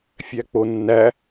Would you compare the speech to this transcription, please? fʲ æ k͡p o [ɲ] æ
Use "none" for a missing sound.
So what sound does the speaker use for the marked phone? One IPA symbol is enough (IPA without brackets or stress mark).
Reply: nː